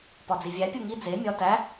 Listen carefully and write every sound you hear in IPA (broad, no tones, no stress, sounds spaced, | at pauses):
p ɒ d͡z i vʲ æ pʲ u ŋ i d͡z e mʲ ɒ t æ